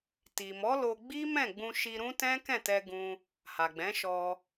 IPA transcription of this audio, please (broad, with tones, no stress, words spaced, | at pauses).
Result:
ti˨mɔ˨˦lo˧ɡ͡bi˦ mɛ̃˦˨ɡ͡bũ˧ ʃi˧ɾũ˦tɛ̃˦ kɛ̃˦˨tɛ˧ɡũ˧ | ha˨ɡ͡bɛ̃˨˦ʃɔ˧